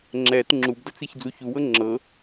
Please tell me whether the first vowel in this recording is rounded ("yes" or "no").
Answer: no